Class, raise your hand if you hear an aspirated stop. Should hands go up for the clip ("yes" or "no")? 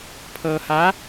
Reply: yes